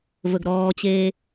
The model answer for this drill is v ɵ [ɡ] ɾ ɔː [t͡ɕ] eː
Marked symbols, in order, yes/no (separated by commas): yes, yes